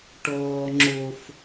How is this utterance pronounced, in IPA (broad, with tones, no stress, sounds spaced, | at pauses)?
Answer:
ʈ ɔː˦ ŋ͡ǁ o˦ f